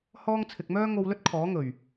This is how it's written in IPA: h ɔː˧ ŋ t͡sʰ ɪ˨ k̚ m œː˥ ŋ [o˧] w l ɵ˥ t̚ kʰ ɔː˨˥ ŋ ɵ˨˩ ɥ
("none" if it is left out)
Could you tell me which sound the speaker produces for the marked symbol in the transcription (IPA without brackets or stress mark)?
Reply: o˧